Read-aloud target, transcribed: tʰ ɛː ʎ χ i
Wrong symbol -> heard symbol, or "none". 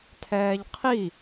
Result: χ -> qʰ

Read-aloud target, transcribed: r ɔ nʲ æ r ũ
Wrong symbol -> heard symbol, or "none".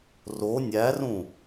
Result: ɔ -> o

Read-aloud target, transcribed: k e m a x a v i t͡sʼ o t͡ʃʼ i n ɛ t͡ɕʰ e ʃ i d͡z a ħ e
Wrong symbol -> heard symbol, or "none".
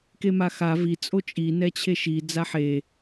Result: none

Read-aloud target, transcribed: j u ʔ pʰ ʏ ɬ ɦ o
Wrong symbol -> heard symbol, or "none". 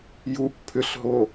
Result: none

